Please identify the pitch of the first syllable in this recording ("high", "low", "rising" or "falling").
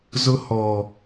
high